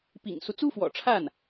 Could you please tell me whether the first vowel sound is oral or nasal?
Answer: oral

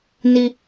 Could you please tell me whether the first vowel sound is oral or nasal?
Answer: oral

